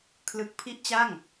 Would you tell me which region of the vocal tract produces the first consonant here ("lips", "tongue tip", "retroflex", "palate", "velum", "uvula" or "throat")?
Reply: velum